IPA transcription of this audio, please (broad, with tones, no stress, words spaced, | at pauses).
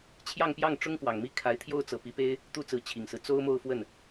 t͡ɕʰjɑ˥˧ŋpjɑ˥˩ŋ ʈ͡ʂʊ˥ŋkwɑ˨˩ŋmi˥˩ kʰa˧˥ɪ̯t̪ʰjo˥˧ʊ̯ t͡sɤ˥˩ pi˧˥pe˥ɪ̯ | t̪u˥˩t͡sɹ̩˧˥ t͡ɕʰi˨˩ŋsɹ̩˦ t͡so˥ʊ̯mo˥˧ʊ̯fwə˥˩n